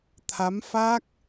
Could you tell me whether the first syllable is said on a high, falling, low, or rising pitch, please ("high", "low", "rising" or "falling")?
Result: rising